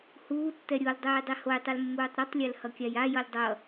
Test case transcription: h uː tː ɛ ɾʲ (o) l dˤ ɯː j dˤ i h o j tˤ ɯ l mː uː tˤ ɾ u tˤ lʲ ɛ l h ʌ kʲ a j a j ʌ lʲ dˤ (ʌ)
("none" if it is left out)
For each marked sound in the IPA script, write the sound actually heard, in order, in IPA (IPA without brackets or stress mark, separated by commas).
o, ʌ